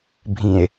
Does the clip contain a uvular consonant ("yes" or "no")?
no